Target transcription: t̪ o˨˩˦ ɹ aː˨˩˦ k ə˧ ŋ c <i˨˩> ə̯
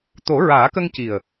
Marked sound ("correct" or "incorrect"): correct